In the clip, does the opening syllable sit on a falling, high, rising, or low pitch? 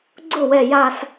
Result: falling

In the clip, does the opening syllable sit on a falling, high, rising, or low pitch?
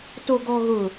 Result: low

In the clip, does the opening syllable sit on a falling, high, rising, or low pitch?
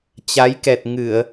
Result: rising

